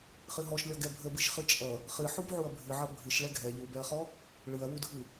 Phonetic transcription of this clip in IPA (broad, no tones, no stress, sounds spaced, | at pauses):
χ ɨ ɦ ɔ ʃ lʲ ɔ ɡ ɛ bʱ ə b ɨ ʃ χ ɨ t͡ʃʼ ʌ | χ ɨ ħ u b ʕ u ɐ̯ bʱ ɨ ʕ ʌ bʱ ɨ ʃ ɭ ɛ ɡʱ ɛ ʎ u b ɛ ɐ̯ χ ɔ | ɭ ɯ ɐ̯ w u dʱ ɯ